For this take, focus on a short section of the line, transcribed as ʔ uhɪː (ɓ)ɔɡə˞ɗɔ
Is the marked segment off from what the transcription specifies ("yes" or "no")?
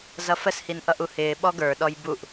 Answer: no